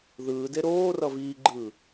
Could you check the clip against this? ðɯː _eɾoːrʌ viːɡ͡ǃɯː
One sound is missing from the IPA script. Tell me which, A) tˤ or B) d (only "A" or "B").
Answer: B